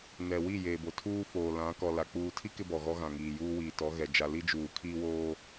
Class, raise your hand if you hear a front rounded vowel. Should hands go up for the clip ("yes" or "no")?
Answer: no